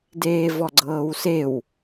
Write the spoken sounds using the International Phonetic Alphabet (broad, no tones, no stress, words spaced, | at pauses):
deːvɔɡ͡ǀɤːwsew